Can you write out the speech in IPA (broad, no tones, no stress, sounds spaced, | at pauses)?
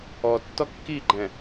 ɔ tː ɔ kː i ɡ͡ǃ ɛ̃